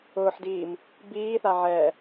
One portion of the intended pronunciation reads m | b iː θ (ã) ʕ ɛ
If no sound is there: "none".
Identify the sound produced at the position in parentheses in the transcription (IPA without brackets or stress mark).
a